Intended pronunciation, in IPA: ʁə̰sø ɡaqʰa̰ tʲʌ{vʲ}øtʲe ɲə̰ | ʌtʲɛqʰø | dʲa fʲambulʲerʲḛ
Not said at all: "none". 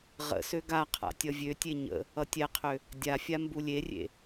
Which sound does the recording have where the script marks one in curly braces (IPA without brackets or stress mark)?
vʲ